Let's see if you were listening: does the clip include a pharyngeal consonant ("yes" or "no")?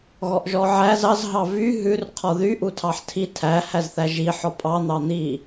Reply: yes